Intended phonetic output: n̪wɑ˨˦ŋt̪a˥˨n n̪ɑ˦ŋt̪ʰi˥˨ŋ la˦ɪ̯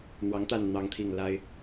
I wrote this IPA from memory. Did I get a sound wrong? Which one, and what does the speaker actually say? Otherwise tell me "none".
none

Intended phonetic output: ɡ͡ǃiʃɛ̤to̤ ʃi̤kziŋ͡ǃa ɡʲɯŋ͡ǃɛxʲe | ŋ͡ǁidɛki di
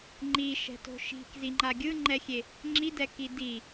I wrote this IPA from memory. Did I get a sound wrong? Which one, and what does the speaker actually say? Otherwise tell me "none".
ɡ͡ǃ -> ŋ͡ǃ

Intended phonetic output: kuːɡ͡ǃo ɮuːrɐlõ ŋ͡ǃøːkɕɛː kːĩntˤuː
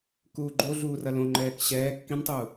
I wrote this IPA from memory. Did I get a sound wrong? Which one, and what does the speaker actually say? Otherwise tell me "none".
øː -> ɛː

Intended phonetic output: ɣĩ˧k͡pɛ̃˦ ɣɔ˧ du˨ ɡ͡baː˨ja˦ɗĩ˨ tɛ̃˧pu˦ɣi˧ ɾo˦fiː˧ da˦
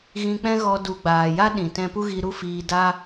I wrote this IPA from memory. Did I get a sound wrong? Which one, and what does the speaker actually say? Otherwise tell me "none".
o˦ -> u˦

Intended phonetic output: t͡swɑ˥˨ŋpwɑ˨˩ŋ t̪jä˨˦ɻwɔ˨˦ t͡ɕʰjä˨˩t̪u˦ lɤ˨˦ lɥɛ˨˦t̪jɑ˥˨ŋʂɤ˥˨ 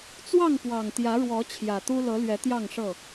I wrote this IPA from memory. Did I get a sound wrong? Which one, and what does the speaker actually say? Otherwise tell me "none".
none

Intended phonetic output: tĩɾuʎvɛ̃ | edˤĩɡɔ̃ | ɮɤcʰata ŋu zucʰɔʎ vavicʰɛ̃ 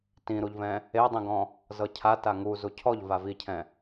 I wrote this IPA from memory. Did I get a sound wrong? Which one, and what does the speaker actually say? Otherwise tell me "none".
ɮ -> z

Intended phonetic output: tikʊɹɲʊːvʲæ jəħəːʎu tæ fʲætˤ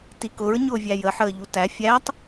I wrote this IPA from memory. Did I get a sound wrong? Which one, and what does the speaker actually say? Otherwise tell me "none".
none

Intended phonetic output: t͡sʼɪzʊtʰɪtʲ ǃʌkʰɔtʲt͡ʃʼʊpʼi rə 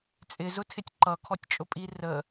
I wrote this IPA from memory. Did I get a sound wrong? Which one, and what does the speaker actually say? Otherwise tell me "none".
none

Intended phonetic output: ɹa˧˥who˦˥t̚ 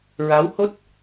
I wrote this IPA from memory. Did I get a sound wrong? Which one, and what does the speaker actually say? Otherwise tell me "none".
none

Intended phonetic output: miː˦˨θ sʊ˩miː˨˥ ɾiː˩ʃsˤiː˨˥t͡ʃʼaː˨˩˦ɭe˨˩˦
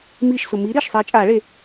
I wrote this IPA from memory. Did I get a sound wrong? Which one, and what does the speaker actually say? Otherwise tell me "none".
θ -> ʃ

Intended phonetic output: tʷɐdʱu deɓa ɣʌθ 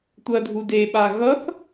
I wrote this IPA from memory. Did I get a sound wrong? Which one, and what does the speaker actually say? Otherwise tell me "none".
none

